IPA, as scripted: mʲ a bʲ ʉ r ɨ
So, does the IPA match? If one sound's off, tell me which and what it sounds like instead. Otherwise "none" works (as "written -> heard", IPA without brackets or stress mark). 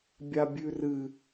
mʲ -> bʲ